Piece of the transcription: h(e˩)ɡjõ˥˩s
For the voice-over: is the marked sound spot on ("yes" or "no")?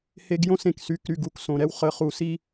no